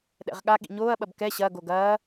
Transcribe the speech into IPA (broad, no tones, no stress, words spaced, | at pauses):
ɗɛ̰ʁɠaɠḭ ɲoːɐ̯ɓɐb kɛ ɕɐːɡo ɡɐː